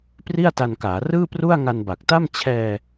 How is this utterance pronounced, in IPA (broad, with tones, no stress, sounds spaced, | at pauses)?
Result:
p r i˥˩ a̯ t a˧ n k aː˩˦ r ɯː˥˩ p r u˥˩ a̯ ŋ a˧ n b a˨˩ k̚ t a˥˩ m t͡ɕʰ ɛː˧